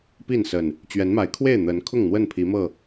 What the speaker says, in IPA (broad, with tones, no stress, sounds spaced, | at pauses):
p i˥˨ n s ə˨˩ n | t͡ɕ ɥ ɛ˨˦ n m a˨˦ ɪ̯ kʰ w e˥˨ ɪ̯ n̪ ə˨˦ n kʰ ʊ˥˨ ŋ n̪ w ə˥˨ n pʰ i˨˦ m ɤ˥˨